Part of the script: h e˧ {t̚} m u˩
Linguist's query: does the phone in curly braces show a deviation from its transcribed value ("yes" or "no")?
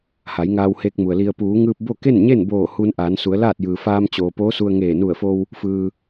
yes